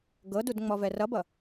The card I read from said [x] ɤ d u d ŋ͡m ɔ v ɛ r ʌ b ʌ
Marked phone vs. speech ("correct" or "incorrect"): incorrect